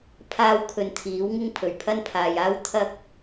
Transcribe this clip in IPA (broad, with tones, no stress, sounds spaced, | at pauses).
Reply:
pʰ aː˥ w kʰ ɵ˧ n t̪ʰ iː˨˥ w ŋ ɪ˥ ŋ pʰ ɵ˨˩ ɥ pʰ ɐ˥ n pʰ aː˨ j aː˥ w t̪ʰ ɐ˥ k̚